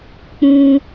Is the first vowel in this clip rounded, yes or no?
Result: yes